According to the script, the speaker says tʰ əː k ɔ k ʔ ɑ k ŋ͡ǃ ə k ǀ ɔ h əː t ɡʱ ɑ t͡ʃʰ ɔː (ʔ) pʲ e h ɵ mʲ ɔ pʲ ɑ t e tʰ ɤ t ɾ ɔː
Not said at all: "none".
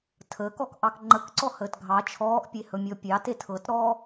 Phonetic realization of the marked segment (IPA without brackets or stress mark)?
ʔ